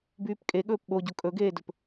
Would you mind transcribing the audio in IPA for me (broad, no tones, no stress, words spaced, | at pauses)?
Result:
byːpkʼeɠɵːp ɓoɟo kʼɵɡeːdɵp